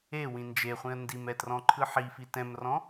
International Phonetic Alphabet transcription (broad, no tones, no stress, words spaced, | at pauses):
e wĩnd͡ʒeχʷĩə̯ ndimɛ trɔ̃ǃʰɯħifi tɛ̃mrɔ̃